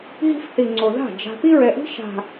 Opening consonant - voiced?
yes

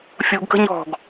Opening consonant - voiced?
no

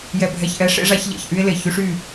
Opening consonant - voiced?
yes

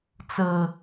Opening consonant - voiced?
no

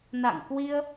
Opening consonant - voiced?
yes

